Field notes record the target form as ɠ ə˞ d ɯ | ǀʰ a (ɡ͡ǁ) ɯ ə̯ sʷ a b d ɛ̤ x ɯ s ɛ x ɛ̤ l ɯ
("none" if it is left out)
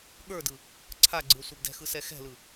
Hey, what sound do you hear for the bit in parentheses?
ɡ͡ǀ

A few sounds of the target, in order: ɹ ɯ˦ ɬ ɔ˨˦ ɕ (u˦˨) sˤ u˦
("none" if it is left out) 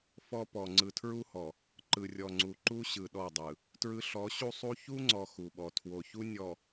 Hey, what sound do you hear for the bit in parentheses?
u˦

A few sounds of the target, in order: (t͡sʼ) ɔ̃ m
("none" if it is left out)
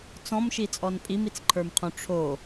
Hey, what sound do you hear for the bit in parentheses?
t͡s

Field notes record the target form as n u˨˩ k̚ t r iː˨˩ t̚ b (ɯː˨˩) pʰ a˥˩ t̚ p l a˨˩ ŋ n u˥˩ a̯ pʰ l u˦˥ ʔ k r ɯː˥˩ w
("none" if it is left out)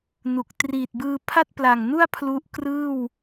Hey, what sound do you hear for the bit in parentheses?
ɯː˧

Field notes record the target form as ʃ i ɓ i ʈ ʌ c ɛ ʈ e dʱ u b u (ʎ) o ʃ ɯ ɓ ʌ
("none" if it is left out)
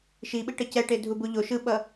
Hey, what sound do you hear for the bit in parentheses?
ʎ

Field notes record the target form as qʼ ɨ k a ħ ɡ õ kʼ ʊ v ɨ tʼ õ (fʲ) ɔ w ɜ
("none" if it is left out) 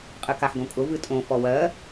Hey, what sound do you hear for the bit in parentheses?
f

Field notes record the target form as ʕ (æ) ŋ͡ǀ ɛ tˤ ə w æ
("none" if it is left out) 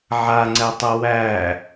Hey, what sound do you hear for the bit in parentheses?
a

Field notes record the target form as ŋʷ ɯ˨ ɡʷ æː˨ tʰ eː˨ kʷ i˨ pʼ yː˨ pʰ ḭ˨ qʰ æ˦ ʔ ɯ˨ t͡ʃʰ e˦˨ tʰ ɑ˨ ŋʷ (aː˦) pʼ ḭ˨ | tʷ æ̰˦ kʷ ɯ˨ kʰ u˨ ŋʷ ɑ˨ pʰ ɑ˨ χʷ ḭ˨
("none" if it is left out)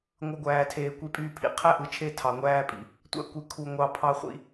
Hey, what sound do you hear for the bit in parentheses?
æː˦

